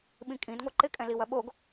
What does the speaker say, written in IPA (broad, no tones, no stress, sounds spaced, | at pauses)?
ɓ ĩ kʼ ĩ d ŋʷ ɐ ǃ ɪ kʼ ɛ̃ l i w ɐ ɓ o ɡ